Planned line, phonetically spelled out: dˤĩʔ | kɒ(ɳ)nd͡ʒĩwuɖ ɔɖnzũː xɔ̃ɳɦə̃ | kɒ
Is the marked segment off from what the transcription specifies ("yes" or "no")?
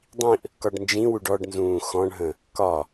yes